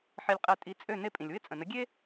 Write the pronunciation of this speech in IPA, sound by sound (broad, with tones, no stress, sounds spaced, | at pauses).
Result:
ħ e˧ lʲ qʼ e˧ tʼ i˩˥ t͡sʼ ø˥˩ n e˥ pʼ ĩ˩ lʲ w ɪ˥˩ t͡sʼ ə̃˩ n ə˩˥ ɡʲ e˥